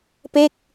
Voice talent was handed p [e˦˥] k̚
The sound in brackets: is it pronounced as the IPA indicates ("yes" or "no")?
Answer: no